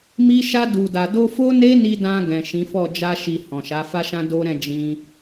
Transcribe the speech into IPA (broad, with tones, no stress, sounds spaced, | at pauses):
m i˧ ʃ a˧ d u˨ d a˨ d o˧ f o˦ n e˦ n i˧ d ã˧ ɡ ɛ̃˨ ʃ ĩ˨˦ f ɔ˦˨ d͡ʒ a˧ ʃ i˨ h ɔ̃˨ ʃ a˨˦ f a˦ ʃ ã˦ d o˦ ɾ ɛ̃˦˨ d͡ʒ ĩ˧